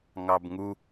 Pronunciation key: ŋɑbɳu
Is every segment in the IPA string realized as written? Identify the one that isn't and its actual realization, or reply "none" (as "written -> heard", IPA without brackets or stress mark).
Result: ɳ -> ŋ